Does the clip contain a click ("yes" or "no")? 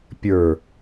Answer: no